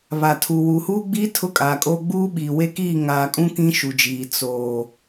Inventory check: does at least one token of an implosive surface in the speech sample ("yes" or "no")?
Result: yes